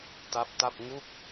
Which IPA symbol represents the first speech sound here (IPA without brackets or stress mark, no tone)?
t